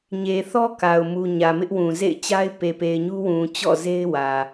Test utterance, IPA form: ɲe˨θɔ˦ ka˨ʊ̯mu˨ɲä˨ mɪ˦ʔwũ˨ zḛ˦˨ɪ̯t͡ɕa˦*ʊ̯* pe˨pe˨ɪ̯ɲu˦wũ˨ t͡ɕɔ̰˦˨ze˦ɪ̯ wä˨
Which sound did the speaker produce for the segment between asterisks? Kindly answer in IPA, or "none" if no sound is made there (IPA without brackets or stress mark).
ɪ̯